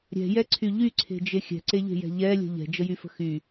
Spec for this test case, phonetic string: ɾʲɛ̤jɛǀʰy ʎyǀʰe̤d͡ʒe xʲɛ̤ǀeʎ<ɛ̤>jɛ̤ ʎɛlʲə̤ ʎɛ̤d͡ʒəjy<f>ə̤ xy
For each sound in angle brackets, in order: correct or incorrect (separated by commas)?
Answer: incorrect, correct